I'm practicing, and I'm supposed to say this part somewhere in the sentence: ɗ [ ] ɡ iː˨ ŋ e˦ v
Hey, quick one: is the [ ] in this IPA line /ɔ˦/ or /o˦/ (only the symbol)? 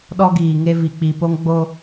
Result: ɔ˦